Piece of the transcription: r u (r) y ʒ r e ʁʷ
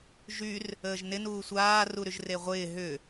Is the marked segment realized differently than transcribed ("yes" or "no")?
yes